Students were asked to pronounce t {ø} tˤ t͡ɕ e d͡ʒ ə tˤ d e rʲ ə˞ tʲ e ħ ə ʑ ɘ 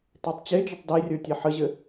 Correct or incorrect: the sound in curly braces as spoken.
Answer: incorrect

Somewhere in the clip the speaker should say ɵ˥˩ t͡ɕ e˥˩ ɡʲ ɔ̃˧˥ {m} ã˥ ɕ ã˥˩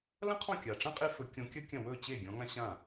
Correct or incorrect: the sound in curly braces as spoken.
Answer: incorrect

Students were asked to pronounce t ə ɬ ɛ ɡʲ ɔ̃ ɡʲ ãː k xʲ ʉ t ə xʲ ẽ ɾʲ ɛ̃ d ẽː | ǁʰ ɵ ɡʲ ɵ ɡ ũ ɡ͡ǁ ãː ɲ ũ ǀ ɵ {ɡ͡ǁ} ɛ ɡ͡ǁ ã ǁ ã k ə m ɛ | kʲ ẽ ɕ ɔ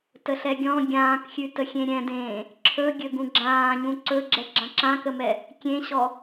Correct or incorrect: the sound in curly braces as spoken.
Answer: correct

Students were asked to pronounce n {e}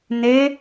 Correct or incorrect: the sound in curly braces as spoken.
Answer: correct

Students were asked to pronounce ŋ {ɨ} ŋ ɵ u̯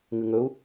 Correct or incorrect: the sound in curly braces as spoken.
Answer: correct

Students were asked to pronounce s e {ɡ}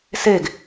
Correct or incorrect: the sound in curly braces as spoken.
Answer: correct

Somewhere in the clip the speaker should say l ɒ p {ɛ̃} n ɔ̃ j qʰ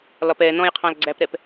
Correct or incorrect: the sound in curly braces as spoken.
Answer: incorrect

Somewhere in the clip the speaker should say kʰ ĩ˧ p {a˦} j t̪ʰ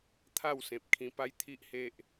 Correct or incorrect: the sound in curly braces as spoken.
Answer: correct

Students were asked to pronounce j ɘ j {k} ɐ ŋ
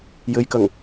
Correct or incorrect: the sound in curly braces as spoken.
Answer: correct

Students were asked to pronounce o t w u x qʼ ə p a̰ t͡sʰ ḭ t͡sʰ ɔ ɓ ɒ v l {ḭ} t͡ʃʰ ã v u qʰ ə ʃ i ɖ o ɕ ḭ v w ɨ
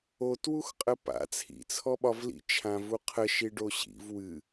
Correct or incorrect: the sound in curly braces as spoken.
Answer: correct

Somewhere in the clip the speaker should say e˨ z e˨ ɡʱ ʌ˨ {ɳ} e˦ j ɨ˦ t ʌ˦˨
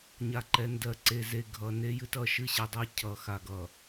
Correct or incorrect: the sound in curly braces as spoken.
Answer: incorrect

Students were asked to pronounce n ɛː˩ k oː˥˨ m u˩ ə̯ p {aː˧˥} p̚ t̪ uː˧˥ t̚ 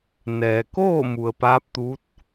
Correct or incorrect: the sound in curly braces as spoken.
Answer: correct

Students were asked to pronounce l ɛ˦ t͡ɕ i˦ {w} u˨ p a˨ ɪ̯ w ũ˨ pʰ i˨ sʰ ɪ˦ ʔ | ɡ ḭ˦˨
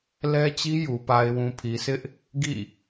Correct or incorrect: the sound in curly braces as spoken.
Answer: incorrect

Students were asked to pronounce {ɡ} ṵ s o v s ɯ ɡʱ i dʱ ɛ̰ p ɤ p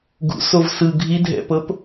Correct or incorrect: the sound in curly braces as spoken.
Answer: correct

